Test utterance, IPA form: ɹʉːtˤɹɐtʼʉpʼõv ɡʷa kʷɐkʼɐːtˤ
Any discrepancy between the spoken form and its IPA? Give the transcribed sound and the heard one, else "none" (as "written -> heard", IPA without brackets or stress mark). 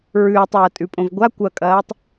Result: none